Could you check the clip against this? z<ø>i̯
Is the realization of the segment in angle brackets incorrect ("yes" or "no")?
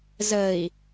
yes